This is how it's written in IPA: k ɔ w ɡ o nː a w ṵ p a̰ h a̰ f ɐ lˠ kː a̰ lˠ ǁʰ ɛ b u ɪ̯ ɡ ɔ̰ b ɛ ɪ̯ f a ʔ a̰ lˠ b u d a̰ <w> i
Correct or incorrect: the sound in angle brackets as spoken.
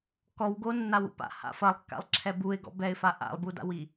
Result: correct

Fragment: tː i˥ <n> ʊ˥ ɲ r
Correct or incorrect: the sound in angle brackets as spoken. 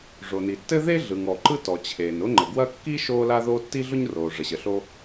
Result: incorrect: ɮ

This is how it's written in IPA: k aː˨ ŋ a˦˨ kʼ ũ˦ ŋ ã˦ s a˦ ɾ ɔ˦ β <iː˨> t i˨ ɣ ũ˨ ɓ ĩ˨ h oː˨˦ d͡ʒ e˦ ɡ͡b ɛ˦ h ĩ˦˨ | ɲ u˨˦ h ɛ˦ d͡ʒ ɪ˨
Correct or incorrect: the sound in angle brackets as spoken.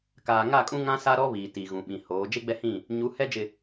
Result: correct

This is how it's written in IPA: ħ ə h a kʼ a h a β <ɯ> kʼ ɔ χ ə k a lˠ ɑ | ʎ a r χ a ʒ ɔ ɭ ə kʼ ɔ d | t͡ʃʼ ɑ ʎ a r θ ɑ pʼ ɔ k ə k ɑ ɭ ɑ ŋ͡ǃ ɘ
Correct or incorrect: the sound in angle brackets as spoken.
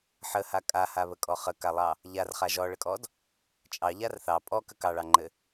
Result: incorrect: ə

